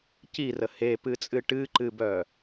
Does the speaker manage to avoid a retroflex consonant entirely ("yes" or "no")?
no